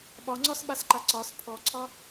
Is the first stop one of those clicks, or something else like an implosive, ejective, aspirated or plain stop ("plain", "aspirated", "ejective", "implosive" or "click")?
implosive